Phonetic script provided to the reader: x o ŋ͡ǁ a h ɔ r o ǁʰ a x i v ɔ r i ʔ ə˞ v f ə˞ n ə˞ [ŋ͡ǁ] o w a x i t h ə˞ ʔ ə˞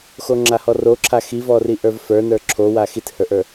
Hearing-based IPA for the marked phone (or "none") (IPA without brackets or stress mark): ǁʰ